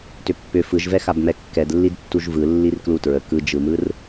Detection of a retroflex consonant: absent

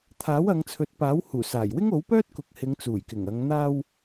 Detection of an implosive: absent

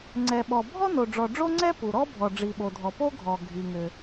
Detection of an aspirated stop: absent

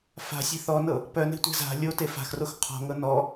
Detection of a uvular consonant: present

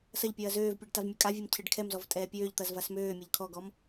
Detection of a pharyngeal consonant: absent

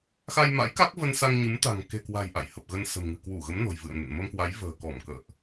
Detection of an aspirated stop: absent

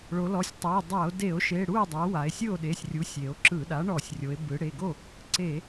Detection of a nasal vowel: absent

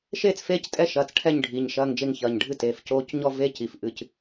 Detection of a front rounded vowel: absent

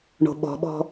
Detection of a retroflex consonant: present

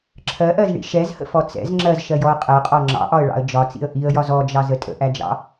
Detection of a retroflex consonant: present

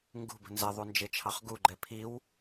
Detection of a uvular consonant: present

